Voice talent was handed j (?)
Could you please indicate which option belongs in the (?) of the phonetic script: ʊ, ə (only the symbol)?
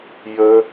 ə